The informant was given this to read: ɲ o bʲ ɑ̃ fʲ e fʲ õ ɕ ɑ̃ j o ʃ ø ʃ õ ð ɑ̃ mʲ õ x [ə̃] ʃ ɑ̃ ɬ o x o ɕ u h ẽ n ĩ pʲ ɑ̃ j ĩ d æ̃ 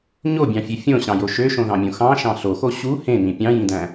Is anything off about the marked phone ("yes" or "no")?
yes